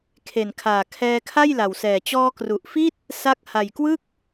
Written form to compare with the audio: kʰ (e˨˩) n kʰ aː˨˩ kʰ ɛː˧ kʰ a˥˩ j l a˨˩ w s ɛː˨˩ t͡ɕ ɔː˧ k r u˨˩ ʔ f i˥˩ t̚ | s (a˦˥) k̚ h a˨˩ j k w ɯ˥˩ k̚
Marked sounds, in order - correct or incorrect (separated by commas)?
correct, correct